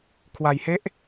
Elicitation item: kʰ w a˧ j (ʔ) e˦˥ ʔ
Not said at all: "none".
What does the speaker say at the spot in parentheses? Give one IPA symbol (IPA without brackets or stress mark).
h